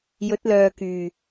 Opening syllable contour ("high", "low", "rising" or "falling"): rising